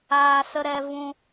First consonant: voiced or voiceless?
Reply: voiceless